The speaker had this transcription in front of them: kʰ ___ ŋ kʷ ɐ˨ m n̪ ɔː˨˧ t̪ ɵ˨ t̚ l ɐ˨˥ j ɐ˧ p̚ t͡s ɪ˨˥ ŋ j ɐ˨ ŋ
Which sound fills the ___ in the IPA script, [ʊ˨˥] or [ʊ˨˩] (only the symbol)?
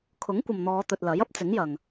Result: ʊ˨˥